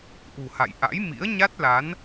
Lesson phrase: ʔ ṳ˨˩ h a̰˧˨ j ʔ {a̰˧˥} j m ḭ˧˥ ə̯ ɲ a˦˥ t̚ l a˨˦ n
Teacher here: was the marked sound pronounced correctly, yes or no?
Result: yes